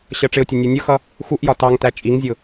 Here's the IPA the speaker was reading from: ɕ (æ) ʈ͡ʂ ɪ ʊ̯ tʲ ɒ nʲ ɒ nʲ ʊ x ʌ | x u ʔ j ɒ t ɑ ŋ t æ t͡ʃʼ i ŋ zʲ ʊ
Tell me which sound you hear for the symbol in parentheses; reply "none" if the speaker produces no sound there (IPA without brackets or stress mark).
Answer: ɜ